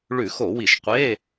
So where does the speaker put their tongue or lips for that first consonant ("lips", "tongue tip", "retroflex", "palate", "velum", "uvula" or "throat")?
retroflex